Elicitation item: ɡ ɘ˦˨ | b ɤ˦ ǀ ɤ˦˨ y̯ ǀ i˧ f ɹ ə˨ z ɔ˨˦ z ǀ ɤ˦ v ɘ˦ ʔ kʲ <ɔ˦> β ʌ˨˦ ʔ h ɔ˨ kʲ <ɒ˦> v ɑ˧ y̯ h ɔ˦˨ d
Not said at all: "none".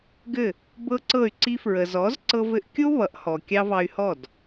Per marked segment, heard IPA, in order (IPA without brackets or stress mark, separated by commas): o˦, ɑ˦